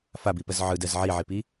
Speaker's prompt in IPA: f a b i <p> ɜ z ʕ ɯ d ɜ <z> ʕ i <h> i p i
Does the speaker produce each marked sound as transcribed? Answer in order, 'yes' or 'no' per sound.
yes, yes, no

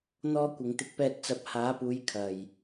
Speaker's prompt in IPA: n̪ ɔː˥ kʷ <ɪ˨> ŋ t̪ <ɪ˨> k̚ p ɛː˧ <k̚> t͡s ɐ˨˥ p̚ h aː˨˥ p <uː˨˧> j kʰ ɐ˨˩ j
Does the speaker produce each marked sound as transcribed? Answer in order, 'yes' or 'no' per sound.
yes, no, no, yes

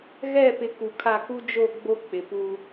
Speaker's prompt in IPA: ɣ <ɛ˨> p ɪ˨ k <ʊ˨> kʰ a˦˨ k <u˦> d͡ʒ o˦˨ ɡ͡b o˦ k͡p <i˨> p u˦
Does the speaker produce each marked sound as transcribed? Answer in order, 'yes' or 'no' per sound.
no, no, yes, no

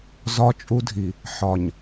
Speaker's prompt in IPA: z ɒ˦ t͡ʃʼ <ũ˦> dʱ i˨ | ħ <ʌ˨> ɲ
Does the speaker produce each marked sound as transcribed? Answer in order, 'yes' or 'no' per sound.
no, no

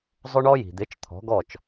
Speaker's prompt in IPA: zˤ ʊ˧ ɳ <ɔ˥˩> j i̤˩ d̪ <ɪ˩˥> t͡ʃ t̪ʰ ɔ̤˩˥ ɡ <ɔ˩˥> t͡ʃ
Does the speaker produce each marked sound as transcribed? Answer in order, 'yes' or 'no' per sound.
no, yes, no

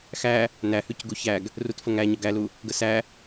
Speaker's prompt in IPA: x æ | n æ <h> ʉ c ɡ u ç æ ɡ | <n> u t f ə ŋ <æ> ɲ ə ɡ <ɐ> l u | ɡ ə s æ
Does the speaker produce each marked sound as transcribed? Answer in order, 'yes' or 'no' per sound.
yes, no, yes, no

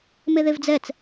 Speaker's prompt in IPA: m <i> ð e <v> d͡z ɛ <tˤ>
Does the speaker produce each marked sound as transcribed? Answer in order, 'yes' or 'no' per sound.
no, yes, no

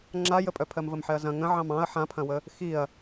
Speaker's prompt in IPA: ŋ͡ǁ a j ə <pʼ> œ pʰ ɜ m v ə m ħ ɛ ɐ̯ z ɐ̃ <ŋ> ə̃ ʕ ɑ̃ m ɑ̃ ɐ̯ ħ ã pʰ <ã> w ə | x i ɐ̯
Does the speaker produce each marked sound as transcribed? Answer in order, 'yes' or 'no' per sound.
yes, yes, no

